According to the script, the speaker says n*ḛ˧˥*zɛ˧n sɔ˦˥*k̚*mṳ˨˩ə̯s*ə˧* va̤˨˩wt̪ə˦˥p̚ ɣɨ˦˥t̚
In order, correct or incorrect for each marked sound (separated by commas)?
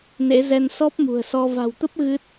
correct, incorrect, incorrect